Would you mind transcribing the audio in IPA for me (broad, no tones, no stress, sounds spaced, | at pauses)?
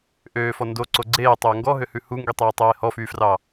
ʔ øː f ɔ n d o ǀ o ɡ͡ǀ eː tˤ ɵː ŋ ɡ ɔ ɦ ø h ʉ h u ŋ ɡ i tˤ eː tˤ eː h ɔ f yː f r ɑ